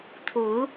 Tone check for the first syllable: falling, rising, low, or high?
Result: rising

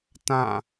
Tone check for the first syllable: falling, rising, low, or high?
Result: falling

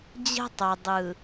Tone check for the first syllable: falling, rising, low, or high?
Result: high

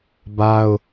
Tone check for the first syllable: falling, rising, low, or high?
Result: high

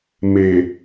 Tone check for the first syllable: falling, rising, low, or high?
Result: low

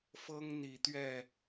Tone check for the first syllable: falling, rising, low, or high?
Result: high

